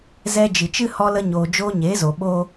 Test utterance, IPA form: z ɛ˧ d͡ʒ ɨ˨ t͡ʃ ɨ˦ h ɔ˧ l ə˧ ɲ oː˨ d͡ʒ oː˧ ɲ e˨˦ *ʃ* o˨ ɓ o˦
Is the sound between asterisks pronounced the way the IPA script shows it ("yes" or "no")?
no